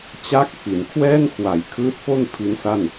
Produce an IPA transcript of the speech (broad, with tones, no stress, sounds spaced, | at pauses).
t͡ɕ a˦˥ k̚ f i˩˦ n kʰ w ɛː˥˩ n kʰ w a˩˦ j kʰ ɯː˦˥ t̚ f o˥˩ n pʰ i˦˥ n s a˥˩ n